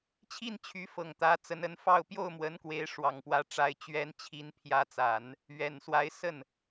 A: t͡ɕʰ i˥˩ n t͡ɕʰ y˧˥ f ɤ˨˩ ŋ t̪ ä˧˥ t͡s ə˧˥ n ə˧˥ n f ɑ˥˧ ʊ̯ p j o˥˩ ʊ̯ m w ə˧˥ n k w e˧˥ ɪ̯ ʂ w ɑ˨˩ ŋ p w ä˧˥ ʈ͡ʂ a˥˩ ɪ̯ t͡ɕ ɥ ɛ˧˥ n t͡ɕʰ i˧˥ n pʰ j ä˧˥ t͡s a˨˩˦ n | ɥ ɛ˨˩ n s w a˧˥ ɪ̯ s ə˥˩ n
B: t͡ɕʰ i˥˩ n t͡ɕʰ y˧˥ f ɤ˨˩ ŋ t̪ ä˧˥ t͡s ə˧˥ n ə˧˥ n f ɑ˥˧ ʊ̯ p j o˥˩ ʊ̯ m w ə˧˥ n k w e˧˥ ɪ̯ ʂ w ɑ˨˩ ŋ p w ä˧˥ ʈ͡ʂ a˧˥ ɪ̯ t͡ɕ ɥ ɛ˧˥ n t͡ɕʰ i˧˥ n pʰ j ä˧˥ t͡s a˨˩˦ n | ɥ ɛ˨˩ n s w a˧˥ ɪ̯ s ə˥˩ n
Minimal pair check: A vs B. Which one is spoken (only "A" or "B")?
B